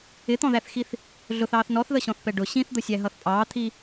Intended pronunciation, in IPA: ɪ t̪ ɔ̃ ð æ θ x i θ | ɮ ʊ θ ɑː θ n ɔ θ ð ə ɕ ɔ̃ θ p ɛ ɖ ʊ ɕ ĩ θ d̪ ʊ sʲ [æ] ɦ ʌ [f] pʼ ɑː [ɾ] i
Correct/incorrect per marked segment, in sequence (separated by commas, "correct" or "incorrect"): correct, incorrect, incorrect